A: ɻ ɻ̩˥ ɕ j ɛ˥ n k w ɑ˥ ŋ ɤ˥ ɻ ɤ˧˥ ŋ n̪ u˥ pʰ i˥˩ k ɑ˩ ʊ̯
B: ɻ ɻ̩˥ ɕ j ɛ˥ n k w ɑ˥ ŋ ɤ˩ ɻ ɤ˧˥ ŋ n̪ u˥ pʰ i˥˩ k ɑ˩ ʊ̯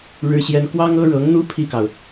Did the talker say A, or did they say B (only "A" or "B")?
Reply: A